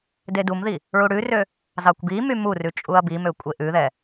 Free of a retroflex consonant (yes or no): no